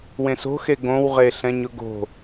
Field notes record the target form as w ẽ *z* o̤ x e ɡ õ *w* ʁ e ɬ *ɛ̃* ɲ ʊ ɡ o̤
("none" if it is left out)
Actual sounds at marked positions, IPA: s, w, ɛ̃

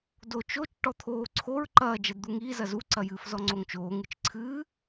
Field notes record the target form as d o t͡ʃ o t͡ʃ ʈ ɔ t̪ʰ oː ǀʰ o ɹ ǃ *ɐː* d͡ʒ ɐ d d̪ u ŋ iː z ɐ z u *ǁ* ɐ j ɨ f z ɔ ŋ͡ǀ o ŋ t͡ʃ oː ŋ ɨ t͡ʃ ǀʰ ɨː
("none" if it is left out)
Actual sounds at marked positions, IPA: ɐː, ǀ

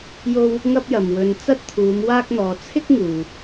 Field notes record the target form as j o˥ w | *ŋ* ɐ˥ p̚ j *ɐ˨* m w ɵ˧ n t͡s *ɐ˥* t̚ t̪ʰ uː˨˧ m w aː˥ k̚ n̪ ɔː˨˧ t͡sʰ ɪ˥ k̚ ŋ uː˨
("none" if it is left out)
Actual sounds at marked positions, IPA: ŋ, ɐ˨, ɐ˥

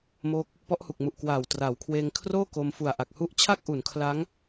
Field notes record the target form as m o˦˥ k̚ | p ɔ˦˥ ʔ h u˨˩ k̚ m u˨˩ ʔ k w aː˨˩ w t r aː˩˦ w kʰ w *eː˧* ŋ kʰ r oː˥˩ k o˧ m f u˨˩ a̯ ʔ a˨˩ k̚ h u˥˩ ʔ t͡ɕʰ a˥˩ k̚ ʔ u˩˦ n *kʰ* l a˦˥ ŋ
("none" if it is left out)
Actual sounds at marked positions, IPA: eː˧, kʰ

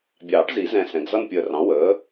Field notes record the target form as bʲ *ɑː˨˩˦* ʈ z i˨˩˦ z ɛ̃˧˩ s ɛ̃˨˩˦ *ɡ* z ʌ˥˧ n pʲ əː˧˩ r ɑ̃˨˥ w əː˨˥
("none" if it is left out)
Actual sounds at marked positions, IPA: ɑː˨˩˦, ɡ

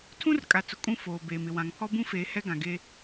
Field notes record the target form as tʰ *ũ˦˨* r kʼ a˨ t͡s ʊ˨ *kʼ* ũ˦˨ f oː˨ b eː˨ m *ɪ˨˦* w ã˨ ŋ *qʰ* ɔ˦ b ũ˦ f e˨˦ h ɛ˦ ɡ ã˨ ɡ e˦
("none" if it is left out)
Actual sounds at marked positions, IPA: ũ˦, kʼ, ɪ˨, pʰ

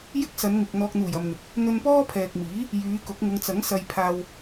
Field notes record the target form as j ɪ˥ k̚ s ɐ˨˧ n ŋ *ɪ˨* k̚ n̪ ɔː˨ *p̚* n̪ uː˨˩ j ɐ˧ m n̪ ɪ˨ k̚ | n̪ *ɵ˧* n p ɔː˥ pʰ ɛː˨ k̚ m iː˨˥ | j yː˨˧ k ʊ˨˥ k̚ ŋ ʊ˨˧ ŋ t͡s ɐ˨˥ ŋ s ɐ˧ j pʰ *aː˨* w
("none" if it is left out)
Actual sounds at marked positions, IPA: ɪ˨, k̚, ɵ˧, aː˧

